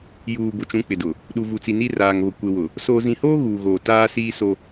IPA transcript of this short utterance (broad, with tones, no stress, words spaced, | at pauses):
juː˨ bʊ˨t͡ʃũ˨˦k͡pɪ˨ dʊ˨ | ɗu˨vu˨t͡si˨ ni˦raː˨ŋβʊ˨ kʷe˨wʊ˨ | soː˨zĩ˨hoː˦ ɣuː˨ ɣoː˨taː˦ siː˦so˦